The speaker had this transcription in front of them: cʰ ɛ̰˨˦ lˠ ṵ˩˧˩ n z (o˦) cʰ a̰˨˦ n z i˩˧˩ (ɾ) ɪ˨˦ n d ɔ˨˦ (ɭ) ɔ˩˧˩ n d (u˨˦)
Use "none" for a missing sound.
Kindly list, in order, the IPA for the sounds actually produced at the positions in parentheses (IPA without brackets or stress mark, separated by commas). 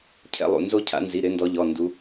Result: o˦, ɾ, ʎ, u˨˦